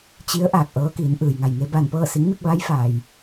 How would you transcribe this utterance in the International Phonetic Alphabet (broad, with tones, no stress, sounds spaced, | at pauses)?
t͡ɕ i˧˥ ə̯ ʔ aː˧˩ k̚ ʔ ɤː˧˥ k iː˩˧ n ʔ ɯː˩ j ŋ a˧˩ j ŋ e˧ b aː˧˩ n p ɤː˥˨ s i˧˥ ŋ m i˧ k̚ ʋ a˧˥ j f aː˩ j